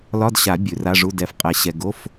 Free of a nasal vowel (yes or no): yes